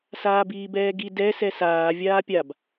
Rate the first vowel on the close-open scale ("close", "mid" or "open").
open